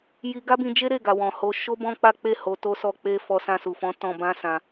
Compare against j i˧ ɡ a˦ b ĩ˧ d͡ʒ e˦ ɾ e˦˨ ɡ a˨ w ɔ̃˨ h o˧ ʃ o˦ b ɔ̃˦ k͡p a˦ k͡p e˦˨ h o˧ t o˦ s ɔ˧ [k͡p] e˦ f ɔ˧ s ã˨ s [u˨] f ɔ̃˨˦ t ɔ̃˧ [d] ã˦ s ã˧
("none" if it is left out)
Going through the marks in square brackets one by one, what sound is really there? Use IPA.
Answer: k͡p, u˨, b

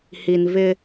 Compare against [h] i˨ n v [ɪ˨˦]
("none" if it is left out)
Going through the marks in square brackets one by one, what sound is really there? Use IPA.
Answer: h, ɪ˦

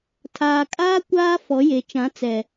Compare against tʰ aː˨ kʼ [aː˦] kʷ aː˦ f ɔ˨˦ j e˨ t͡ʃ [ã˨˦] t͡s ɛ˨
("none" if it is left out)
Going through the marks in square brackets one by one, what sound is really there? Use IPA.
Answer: aː˦, ã˨˦

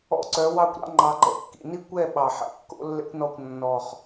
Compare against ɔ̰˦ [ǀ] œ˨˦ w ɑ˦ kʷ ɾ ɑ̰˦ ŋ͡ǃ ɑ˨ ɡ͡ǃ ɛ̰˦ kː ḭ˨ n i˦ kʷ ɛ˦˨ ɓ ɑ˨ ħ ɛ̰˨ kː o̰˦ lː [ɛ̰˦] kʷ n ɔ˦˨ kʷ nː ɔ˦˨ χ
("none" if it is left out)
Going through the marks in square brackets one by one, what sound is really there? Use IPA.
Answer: ǀ, ɛ̰˦

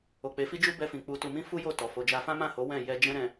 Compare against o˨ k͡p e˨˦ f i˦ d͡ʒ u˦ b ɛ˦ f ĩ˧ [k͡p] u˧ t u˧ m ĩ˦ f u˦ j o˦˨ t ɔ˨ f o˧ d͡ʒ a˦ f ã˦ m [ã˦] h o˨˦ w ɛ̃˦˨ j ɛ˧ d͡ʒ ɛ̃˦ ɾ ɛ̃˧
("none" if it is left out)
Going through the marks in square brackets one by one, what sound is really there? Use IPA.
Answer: k͡p, ã˦˨

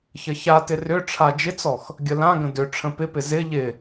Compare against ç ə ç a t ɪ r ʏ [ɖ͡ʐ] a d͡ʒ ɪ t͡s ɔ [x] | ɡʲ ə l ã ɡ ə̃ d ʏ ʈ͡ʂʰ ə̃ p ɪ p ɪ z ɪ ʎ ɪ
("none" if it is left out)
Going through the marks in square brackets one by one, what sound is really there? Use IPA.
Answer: ʈ͡ʂʰ, x

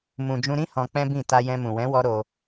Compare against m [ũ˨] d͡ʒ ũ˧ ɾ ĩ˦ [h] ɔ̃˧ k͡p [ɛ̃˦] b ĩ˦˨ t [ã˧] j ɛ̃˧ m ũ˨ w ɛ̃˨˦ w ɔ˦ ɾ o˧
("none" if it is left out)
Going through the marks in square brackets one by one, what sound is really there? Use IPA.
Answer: ũ˨, h, ɛ̃˦, a˧

